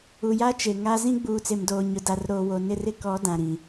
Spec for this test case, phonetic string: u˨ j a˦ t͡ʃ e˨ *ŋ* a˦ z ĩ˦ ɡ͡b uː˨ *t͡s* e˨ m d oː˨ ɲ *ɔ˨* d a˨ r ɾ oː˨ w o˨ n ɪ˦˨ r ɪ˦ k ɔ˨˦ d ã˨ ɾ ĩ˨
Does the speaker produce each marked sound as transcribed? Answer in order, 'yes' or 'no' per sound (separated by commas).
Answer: yes, yes, no